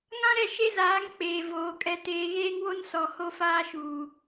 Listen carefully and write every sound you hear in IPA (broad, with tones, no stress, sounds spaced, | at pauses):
ŋ ã˦ ɾ ɛ˦˨ ʃ e˦ z aː˨˦ ŋ k͡p eː˨ v oː˨ kʼ ɛ˦ t eː˦ ɣ eː˦ ŋ w o˦ n s ɔ˨ h o˦ f aː˦ ʃ uː˨